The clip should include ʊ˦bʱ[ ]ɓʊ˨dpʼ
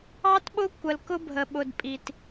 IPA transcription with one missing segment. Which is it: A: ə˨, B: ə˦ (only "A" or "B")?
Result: A